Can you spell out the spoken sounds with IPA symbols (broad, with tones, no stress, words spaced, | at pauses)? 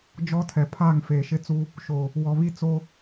d͡ʒɔ˦tʰɛ˨ pʰaː˦˨ŋfeː˨ʃɪ˦t͡su˦ | ʃo˨ | wɔ˨βi˦ t͡so˦